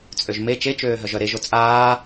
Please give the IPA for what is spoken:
t͡sʼ ø ʒ m e t͡ʃ e t͡ʃ øː ɦ œ ʒ œ ɾ e ʒ o t͡sʼ aː

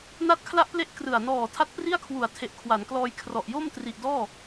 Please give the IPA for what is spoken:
n a˥˩ t̚ kʰ l a˥˩ ʔ p l e˥˩ ʔ k r ɯ˨˩ a̯ n ɔː˨˩ tʰ a˦˥ t̚ p r i˥˩ a̯ kʰ w u˨˩ a̯ tʰ e˨˩ ʔ kʰ w a˩˦ n k l ɔː˧ j kʰ r ɔ˨˩ ʔ j o˥˩ m t r i˨˩ ʔ d ɔː˥˩

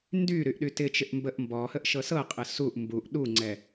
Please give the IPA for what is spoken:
n d y ɾ y ʔ ɗ y t ɪ t͡ʃ ɪ ʔ m b ə ʔ m b ɔ h ə ʔ ʃ ɤ s ɤ qʼ ɪ s u ʔ m b u ʔ ɗ u ŋ͡ǀ ɛ

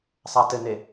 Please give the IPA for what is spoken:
sˤ a t ɘ n e

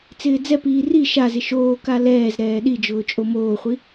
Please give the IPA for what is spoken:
t͡s ɪː d͡z ɛ p iː r i ʃ a z ɪ ʃ oː k a l ɛː z ɾ ɛː ɗ i d͡ʒ ʊː t͡ʃʼ o m oː χʷ i

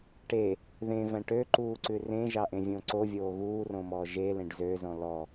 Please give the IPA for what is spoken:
ʈ e | ð ẽ v æ̃ ʈ ø ǃ uː ǀ ʉ r ẽ ʒ ɑ ʔ ẽ vʲ õ ǀ o vʲ oː ɣ uː r õ m ɔː ʒ e l ẽ ɖ z ø z ɔ̃ l ɔ

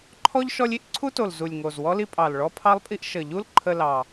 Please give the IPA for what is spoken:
ǃʰ ɔ˥ ʎ ʃ ɔ˥ lʲ i˥ ʔ ǀʰ u˥ t o˨˩ l z u˨˩ lʲ ŋ o˨˩ z w ɔ˥ l i˥ pʼ ɑ˨˩ l ɭ ɔ˥ pʰ ɑ˥ lˠ pʼ i˥ ʔ ʃ ə˨˩ ʎ u˥ l ǃʰ ə˥ l ɑ˨˩

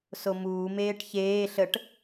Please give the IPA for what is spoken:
s o m uː m eː ʈ ç eː ɬ ə ʈ

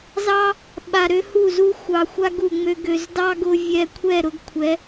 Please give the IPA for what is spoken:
z ɑ˦ | ɓ a˨ ɾ ø˧ h u˦˨ z u˦ xʷ ɑ˨ xʷ a˦ ɡ u˨ ŋ͡m ø˧ ɡ ø˨ z d ɑ˦ ɡ ʊ˧ vʲ ɛ˧ kʷʰ ɛ˦˨ ɾ ʊ˧ ɡ kʷʰ ɛ˨˦

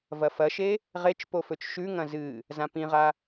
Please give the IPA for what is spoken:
v ɐ f ɐ ʃ e | ʁ e t͡ʃ p o f ɵ t͡ʃ ʃ ʉ ŋ ɐ̃ z ɨ | z ã p ĩ ʁ a

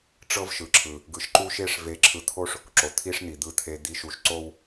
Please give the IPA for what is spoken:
ʈ͡ʂ ɤ˦ v ʃ ɯ˨ ǁʰ ɯ˨ | ɡ ɯ˨ ʃ ǃ u˦ ʃ e˦ ʂ v e˨ ǁʰ ɯ˨ t̪ʰ o˦ ʂ | ǁ o˨ t̪ʰ i˦ ʂ n̪ i˨ d̪ ɯ˨ t̪ʰ e˨ d̪ i˨ ʃ u˨ ʃ ǀ o˦ w

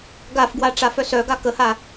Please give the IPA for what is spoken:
ɡ a f ɡ w a ʈ͡ʂ a f œ s œ ɡ a k ə h a

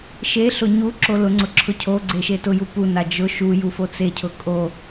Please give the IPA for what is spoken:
ʃ e ɬ ʊ ɲ u ǁ o l ʊ ŋ͡ǀ ʊ ǁʰ ʊ cʰ o ɡ͡ǀ e ʃ e t ʊ j u p u n a d͡ʒ ʊ ʃ u j u f o t͡s e cʰ ʊ kʼ o

